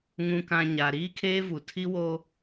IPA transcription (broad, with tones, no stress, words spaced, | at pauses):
ŋũ˨kã˨ ɲa˨ ɾiː˦kʰeː˦vu˨ tʰi˦wo˦